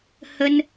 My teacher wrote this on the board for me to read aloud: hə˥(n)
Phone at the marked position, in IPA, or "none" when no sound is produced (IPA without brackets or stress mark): n